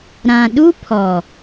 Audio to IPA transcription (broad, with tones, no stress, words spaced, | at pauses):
ɾã˨ɗu˦pʰɔ˨